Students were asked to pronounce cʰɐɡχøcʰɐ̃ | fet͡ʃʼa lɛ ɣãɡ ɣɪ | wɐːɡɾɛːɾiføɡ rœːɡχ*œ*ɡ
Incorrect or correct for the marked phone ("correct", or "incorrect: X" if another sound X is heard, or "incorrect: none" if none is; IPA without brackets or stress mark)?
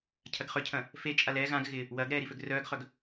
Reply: correct